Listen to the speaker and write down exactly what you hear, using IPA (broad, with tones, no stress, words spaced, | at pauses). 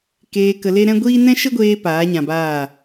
keː˧kə˧le˦ ɾɛ̃˦ɡʷiː˦ nɛ̃˦ʃə˦ɡʷeː˧ paː˨˦ɲã˨baː˦˨